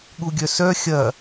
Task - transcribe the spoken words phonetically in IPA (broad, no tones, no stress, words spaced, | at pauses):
ɠuɡʲœsœ xʲɐ